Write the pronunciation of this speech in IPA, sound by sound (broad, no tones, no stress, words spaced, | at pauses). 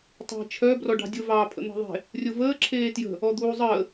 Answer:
tˤe̤ t͡ʃʰœ brɔɖɑ̤dʲʊ vɑːpʰə̰n̪e̤ðˤe̤ | rʲʊvəː ǁʰeːtjə̤ | ɔd̪uːzˤəː